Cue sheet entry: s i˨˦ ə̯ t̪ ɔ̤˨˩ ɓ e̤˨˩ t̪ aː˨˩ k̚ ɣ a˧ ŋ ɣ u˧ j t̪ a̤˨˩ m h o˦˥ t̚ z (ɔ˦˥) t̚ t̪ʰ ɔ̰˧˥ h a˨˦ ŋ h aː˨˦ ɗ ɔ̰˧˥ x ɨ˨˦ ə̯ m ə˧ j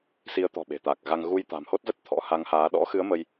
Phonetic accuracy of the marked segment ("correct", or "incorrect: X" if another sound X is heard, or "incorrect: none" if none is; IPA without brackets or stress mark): incorrect: ə˦˥